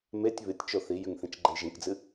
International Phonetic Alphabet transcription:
m e tʲ β ɨ tʲ t͡ʃ o θ i j ʉ ŋ θ ĩ t͡ʃ ɡ͡ǃ e j ʒ ĩ k d͡z ɨ

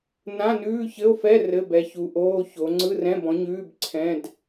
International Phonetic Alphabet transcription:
n ã˧˥˧ n ʉː˧˥˧ ç ɘ˧˥˧ o̯ f ɛ˧˥˧ r ɘ˧˥˧ b ɛ˨˥ ç u˨˥ ʔ oː˧˥˧ ç o˨˥ ŋ͡ǀ ɯ˧˥˧ r ɛ̃˧˥˧ b ɔ̃˨˥ ɲ ʉː˧˥˧ b ǀʰ ɛ̃˧˥˧ d

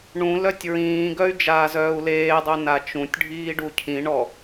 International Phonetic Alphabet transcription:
ɳ ũ l œ tʲ ɹ ĩː ɡ œ y̯ d͡ʒ aː z œː u̯ l eː dˤ œ n a t͡ʃ ũ tʲ ɖʱ iː ɖ u cʰ ĩ ɳ ɔ

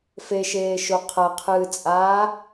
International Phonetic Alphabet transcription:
f e ʃ eː ʃ o qʰ ɐ qʰ ɨː t͡sʼ aː

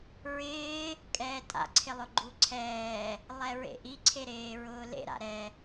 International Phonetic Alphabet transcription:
ɹ ɪː | kʼ ɛː tʼ a̰ ǀʰ ɪ lˠ ʊ ɡ͡ǃ u ǀʰ ɛː | lˠ ɛ ɹ ḛ ʔ i ǀʰ e ɾ eː ɹ ʊː l ḛ ɾ a̰ ɾ ɛ

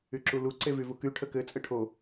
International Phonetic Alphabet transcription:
y ǁ u l u ǀ e v y v u k y ʈʰ ə k ɘ t͡sʼ ɘ ʈʰ o

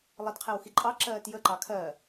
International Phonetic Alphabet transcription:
lˠ ə d qʰ ɛ w x i ǃʼ ɑ ǁ ɜː t j ə ǃ ɑ kʰ ɜ

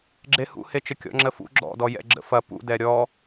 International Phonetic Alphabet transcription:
ɡ͡ǁ e h ṵ h e t͡ʃ ə kʲ ɔ̰ ŋ͡ǁ ə f ṵ ɡ͡ǁ ɔ̰ d ɔ j ɛ̰ ɡ͡ǁ ə̰ f ɐ p ṵ d ɛ ɾʲ ɔ

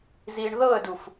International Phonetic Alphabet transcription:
z i ɳ ð ɤ ə̯ d u f

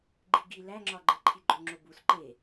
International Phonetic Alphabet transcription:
ɡ͡ǃ i ɡ i l æ ŋ͡ǁ ɒ ɡ͡ǃ e ǃʰ i ɡ͡ǃ o ŋ͡ǁ o b u s ǃ e

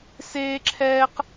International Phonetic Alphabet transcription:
s eː˥ ǁʰ ɛː˥ q

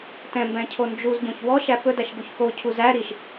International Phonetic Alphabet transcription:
t ɛ̃ m b ɛ̃ cʰ o n d͡ʒ u z ɟ õ ç w ɔ ʃ æ p ɵ d æ ʃ ɡ u ç k o cʰ u z æ ɾ i ʃ

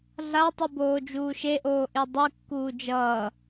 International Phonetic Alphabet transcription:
ɮ a tˤ u b oː d͡ʒ uː ʃ e ʔ oː ʔ e dˤ ɯ kː uː d͡ʒ ʌː

